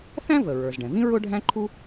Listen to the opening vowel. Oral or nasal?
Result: nasal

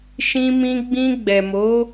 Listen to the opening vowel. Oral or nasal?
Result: nasal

